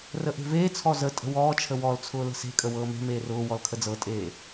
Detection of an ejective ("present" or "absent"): present